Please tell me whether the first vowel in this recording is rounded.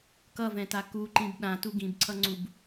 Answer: no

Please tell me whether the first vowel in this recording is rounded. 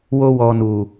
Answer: yes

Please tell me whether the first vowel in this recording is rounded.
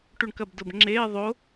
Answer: yes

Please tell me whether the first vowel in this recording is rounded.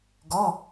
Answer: yes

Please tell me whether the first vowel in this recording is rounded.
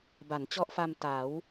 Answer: no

